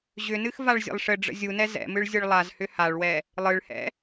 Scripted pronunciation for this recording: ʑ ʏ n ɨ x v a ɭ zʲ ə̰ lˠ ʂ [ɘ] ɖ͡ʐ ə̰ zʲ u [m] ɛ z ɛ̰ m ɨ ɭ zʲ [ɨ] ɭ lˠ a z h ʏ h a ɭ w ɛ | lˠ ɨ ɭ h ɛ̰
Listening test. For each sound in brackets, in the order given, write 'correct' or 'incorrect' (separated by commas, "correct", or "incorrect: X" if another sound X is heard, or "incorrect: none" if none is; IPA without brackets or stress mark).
correct, incorrect: n, correct